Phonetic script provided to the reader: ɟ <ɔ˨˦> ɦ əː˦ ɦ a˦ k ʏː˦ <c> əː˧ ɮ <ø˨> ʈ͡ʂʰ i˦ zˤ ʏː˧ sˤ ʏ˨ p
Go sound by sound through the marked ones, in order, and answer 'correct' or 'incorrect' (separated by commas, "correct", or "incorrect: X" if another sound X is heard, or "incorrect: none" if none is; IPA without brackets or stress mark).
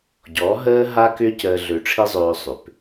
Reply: correct, correct, correct